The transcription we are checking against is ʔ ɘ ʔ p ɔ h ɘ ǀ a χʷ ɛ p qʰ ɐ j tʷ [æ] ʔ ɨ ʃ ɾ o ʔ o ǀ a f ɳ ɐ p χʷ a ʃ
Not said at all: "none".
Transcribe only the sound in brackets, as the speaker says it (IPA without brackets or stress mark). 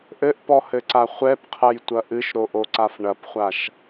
ɐ